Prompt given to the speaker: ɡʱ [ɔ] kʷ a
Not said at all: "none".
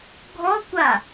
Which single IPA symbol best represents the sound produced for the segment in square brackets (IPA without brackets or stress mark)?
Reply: ɔ